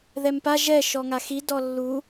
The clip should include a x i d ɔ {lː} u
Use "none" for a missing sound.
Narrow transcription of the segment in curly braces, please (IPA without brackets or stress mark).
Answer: lː